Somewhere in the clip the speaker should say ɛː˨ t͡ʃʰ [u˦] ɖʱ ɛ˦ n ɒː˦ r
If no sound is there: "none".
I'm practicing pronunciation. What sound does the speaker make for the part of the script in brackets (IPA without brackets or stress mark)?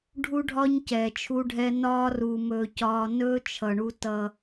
u˦